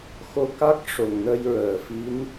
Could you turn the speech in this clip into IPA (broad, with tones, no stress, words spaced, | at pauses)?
xo˧ka˦˥k̚ ʂo˨˩ŋnə˧jɹəː˨˩˨fi˧˥n